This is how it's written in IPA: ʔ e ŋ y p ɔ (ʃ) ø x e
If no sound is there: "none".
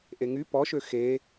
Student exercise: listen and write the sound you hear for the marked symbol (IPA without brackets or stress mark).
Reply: ʃ